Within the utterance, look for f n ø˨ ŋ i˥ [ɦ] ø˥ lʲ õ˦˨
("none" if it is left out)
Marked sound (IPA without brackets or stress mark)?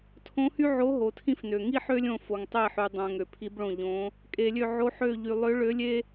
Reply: ħ